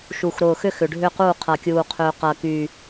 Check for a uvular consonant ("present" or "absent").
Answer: present